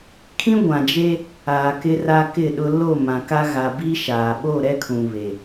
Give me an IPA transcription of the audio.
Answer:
kʰ ĩ˦ ɡʷ ã˨ d͡ʒ e˦ | aː˨ k ɪ˦ r aː˦ k ɪ˦˨ ɗ ʊ˦ l o˦˨ m ã˨ k a˦ ɣ a˨ b iː˦ ʃ aː˨ ɓ o˦˨ ɾ ɛ˦ kʰ ũ˨ β e˨

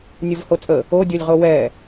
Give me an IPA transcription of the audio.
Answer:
nʲ o v h o t͡sʼ ə | o dʲ o lʲ ʁ o w ɛ

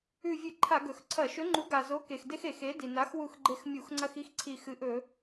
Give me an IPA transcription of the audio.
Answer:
ʉ˧˩ vʲ ɨ˧˩˧ ǃʰ a˧˩˧ ɡ ɵ˩ x ǀʰ ɐ˧˩˧ ʃ ɵ˨˥ ŋ͡ǃ u˨˥ ɡ a˩ z o˨˥ k e˩ x d e˦ x e˧˩˧ x e˨˥ d i˩ n a˨˥ x w u˧˩ x ɡ͡ǃ e˧˩ x mʲ u˧˩˧ x ŋ͡ǀ ɐ˦ x i˦ x ǀʰ i˧˩ x ɨ˨˥ ʔ ɵ˧˩˧

